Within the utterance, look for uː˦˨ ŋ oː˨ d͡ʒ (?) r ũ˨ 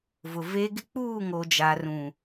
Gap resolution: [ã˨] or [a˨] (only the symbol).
a˨